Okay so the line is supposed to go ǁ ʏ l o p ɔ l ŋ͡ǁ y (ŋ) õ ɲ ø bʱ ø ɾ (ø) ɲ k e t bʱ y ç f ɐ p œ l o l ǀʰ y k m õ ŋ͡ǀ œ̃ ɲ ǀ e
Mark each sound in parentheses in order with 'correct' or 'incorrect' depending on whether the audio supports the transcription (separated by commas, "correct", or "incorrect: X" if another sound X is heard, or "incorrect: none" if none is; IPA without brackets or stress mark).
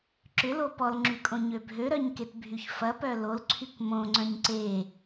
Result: incorrect: kʼ, incorrect: œ